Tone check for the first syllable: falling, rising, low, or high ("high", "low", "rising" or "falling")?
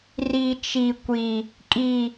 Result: high